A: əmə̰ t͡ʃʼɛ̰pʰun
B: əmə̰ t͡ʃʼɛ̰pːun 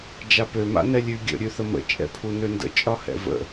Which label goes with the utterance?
A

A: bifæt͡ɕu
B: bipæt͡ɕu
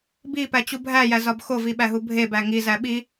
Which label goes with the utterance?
B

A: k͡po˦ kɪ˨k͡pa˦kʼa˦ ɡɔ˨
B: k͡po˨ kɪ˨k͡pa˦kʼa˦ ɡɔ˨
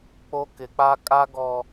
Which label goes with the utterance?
A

